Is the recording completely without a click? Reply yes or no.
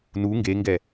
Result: yes